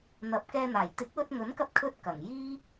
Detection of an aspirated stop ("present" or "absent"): present